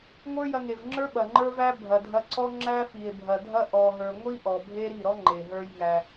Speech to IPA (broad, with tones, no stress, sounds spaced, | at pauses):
ŋʷ ə˞˦ j ɐ˧ ŋ e˨ v ŋ͡ǁ ə˞˦ ɓ ɐ˨ ŋ͡ǃ ə˞˦ v æ˦ bʱ ɐ˨ dʱ ɐ˧ ǀ ɔ˦ ŋ͡ǁ æ˦ f i˨ e̯ bʱ ɐ˨ dʱ ɐ˦ ʔ ɔ˧ ɦ ə˞˧ ŋʷ i˦ ʔ ɔ˨ bʱ e˦ ɾ i˦˨ ɾ ɔ˦ ŋ͡ǃ e˨ ɦ ə˞˦ j ŋ æ˧